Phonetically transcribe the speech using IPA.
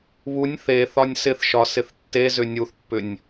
β u nʲ θ e θ ɒ nʲ s ɪ θ ʃ ɒ s ɪ θ tː e z ʏ nʲ u θ pː ʏ nʲ

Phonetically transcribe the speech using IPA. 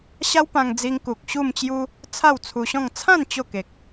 ɕ a˦ w p ã˧ ŋ d͡z i˧ ŋ k u˨ k̚ ɕ u˥˧ m t͡ɕ j u˦ | t͡sʰ a˥˧ w t͡sʰ u˧ ɕ ɔ̃˥˧ ŋ t͡sʰ ã˥˧ n t͡ɕ o˥˧ k e˨ k̚

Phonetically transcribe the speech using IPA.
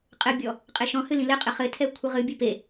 qʼ ɘ bʲ ɔ | qʼ e ʃ ɔ̃ h ɨ l ĩ l ɘ qʼ ɘ χ ɘ tʰ ɛ kʷʰ ɘ ʁ ɨ bʲ ɨ p e

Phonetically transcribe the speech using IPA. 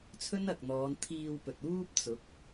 t͡sʰ ɵ˥ n ɐ˨ k̚ n̪ ɔː˨˧ n t̪ʰ iː˧ w p ɵ˨ t̚ uː˥ p̚ t͡s ʊ˨˥ k̚

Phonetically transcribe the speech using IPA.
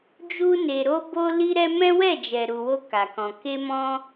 d͡ʒ u˧ n e˨ ɾ o˧ b o˧ l i˧ ɾ ɛ˧ m ɛ̃˦ w ɛ˦˨ d͡ʒ ɛ˨ ɾ u˨ w o˧ k a˨ k ɔ̃˨ k e˧ m ɔ̃˧

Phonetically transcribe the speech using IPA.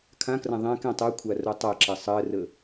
kʰ ã k r ã ðˤ ɛ̃ k ɛ̃ tˤ ɜ kʷʰ a r o tˤ a ǁ ɜ sˤ ɜ r ə

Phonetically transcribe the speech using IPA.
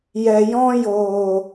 j ɛ˨ j ɔ̃˧ j oː˨

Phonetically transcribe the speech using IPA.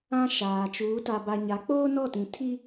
ã˦ ʃ aː˨ t͡ʃ uː˨˦ t a˨ b a˨ ɲ a˨˦ k͡p oː˦ n ɔ˦˨ t ĩ˨ tʰ i˦

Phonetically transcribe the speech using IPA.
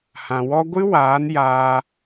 h ã˨ w ɔ˦ ɡʷ ɨ˦ w aː˨˦ n j aː˧

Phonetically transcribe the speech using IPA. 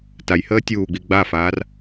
t a j h əː tʲ uː ɡ͡b i ɡ͡b a f aː r

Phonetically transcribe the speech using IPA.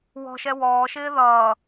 w ɔ̤ ʃ ɛ w ɔː ʃ ɪː ð ʌː

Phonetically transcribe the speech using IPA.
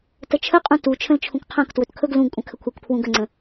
t ə t͡ʃʰ ə qʼ ũ t u t͡ʃʰ ə̃ l t͡ʃʰ ũ k qʰ ã k t w ɵ t kʰ ɵ ɡ l ũ ɡ kʷʼ ə̃ kʰ ə kʷʰ ɛ k pʰ w ũ ɡ ə ŋ͡ǀ ə̃

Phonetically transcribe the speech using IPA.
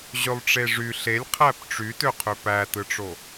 ʑ ø lˠ ʈ͡ʂ e ʐ y ɬ e lʲ qʰ æ p ʈ͡ʂ y t ø qʰ ø p æ t ɯ ʈ͡ʂ o

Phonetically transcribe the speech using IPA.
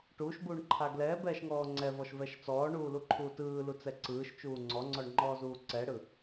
ʈ uː ʃ b uː ɳ ǃʰ a ɡ l ɛː b ɛː ʃ ŋ ɔː ŋ͡ǀ ɛ v ɔ ʃ v ɛ ʃ t͡s ɔː ɳ uː l u ǃʰ uː t ɯː l u t͡s ɛ ǀ ɯː ʃ t͡ʃ uː ŋ͡ǀ ɔ ŋ͡ǀ ɔ ɳ ŋ͡ǃ ɔː z uː ǀ ɛ ɽ ɯ

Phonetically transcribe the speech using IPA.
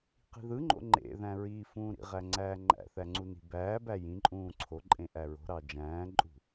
q i̤ ð ɯ ŋ͡ǃ o̰ ŋ͡ǃ ḛ ð æ̃ ɹ iː f ũː ɾ ḭ ʁ æ ŋ͡ǀ æː ŋ͡ǃ æ̰ θ æ ŋ͡ǀ u n i̤ b æː b æ j ĩ ǃʼ ũː ǀʰ o ǃʼ ẽ ʔ æ ɹ o̤ ɾ ɑ d͡ʒ æ̃ː ǃʼ ṳ

